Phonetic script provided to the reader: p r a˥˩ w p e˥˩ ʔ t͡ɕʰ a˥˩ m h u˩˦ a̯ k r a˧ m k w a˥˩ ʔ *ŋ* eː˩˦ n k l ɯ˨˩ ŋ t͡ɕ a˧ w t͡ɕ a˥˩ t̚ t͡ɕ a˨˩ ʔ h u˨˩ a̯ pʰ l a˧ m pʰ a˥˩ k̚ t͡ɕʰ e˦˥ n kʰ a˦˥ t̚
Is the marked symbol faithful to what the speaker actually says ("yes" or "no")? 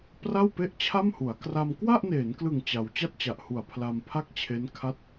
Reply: no